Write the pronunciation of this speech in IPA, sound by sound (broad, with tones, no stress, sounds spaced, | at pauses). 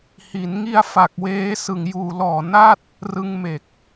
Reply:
h i˩˦ n ŋ i˧ a̯ f a˨˩ k̚ w eː˦˥ s ɯ˨˩ ŋ j uː˨˩ l ɔː˨˩ n a˥˩ t̚ | r ɯ˧ ŋ m e˨˩ k̚